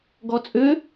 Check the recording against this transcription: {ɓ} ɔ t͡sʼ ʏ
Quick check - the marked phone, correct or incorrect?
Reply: incorrect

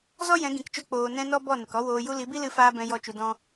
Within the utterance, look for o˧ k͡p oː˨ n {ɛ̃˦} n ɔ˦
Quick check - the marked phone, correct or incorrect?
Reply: incorrect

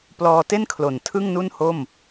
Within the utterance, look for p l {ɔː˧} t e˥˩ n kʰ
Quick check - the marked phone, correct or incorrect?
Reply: correct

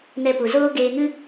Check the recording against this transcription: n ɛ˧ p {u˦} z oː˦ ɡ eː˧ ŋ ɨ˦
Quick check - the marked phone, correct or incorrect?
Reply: incorrect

